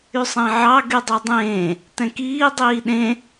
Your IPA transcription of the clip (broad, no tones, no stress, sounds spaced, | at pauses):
y sˤ ẽ ʕ ɑ ɡ y dˤ y dˤ ẽː | t ɛ̃ k iː dˤ iː ɗ ẽ